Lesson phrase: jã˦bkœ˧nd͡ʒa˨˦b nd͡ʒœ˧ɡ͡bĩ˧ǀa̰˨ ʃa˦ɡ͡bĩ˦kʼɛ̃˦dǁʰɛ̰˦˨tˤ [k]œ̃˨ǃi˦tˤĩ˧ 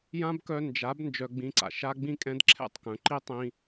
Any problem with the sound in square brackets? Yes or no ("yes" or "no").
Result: no